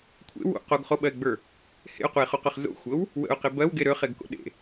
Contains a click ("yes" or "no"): no